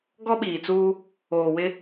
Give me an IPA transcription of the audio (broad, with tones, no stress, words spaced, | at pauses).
ɡɔ˦ɓiː˨t͡suː˦ | oː˨wɪ˦